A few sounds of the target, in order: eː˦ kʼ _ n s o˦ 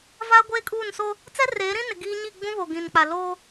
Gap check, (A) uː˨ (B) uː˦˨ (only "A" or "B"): B